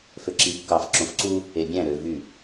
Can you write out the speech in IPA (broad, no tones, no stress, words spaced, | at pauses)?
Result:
føǁiːkːɑf ǁõfǀu | ebʲæ̃ ɾø vy